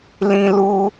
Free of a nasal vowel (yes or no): no